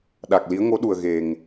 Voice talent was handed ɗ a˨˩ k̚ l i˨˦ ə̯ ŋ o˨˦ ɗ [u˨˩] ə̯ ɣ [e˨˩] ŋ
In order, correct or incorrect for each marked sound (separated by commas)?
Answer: correct, correct